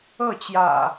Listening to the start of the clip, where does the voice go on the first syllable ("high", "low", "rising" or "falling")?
falling